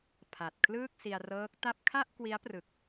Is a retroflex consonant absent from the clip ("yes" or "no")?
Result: yes